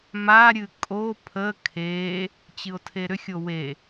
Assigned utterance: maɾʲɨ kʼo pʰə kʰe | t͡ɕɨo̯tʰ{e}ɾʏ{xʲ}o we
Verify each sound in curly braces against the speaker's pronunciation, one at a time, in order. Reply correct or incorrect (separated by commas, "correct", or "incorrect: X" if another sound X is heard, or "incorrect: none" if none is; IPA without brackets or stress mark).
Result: correct, correct